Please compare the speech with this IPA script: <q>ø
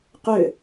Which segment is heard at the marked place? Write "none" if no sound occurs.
q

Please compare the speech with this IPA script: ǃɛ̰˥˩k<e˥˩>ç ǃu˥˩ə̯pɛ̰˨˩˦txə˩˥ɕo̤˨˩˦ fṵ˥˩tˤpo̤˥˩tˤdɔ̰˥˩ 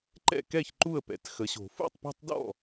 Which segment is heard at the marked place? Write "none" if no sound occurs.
ɛ˥˩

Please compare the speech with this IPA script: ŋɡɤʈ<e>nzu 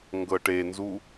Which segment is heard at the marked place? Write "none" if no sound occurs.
e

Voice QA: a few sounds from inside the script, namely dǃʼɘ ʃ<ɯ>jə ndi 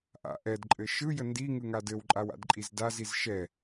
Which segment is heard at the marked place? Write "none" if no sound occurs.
ɯ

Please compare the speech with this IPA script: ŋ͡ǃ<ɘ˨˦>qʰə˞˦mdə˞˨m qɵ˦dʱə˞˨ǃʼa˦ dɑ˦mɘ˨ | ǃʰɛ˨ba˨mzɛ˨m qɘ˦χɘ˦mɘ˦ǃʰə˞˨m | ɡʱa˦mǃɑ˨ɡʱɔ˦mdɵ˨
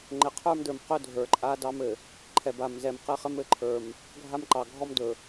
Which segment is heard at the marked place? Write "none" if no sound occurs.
ɘ˨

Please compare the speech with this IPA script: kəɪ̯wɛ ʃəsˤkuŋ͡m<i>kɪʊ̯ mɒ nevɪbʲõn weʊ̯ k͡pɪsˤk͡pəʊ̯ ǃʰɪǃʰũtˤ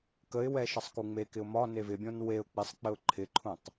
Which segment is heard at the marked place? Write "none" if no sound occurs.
e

